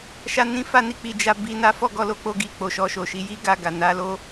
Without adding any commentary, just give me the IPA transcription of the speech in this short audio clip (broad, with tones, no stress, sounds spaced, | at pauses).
ʃ a˦ n ĩ˦ f a˦ n i˦˨ k͡p i˧ d͡ʒ a˧ b i˨ n a˨˦ f ɔ˦˨ ɡ ɔ˨˦ l o˧ k͡p o˧ ɡ i˧ k͡p o˨ ʃ ɔ˧ ʃ o˨ ʃ i˨˦ j i˦ ɡ a˧ ɡ a˨ n a˨˦ l o˦